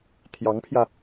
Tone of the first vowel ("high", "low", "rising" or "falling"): rising